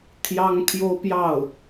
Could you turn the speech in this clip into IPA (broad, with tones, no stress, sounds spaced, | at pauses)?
t̪ʰ j ɑ˥ ŋ t̪ʰ j o˥ ʊ̯ p j ɑ˥˩ ʊ̯